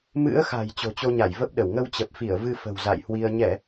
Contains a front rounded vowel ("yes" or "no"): no